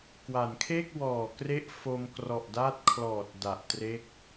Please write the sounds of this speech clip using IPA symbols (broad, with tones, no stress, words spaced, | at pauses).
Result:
kwa˩˦nkʰe˥˩k̚wɔː˨˩kre˦˥ʔ fo˧mkrɔ˨˩ʔda˦˥t̚ kʰlɔː˨˩t̚ da˨˩ʔtre˦˥k̚